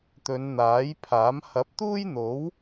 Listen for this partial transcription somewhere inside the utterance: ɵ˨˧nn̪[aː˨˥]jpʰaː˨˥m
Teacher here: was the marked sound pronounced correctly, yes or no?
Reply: yes